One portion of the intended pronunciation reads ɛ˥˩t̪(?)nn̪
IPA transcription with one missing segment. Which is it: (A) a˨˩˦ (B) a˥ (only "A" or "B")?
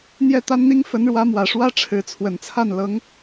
B